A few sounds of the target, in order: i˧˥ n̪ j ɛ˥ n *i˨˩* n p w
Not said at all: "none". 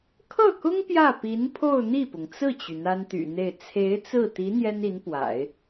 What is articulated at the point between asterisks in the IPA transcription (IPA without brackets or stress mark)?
i˧˥